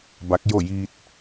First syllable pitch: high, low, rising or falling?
rising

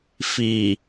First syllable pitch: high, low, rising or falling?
low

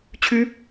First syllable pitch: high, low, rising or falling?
rising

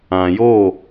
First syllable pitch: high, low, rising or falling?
low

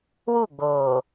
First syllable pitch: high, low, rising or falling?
falling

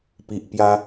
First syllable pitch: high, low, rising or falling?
low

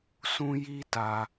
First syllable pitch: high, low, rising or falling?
high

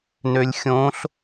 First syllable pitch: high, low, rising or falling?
low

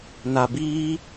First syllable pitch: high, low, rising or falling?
low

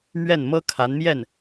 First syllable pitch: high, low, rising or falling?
falling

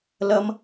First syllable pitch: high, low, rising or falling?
high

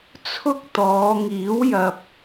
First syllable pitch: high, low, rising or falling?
high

